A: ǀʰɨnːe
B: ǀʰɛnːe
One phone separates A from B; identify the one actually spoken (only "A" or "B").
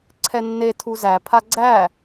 B